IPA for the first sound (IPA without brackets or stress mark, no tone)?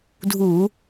dʱ